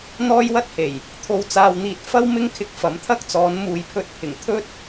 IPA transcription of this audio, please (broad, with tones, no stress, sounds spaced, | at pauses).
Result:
n̪ ɔː˥ j w ɐ˥ t̚ h e˨˩ j | t̪ʰ o˧ w t͡s aː˧ w n̪ iː˧ t̚ f ɐ˥ w m ɪ˥ ŋ kʰ ɪ˧ k̚ f ɐ˨˥ m t̪ʰ ɐ˥ k̚ t͡s ɔː˨˧ n m uː˨ j pʰ ɵ˧ t̚ pʰ ɪ˨˩ ŋ t̪ʰ ɵ˥ t̚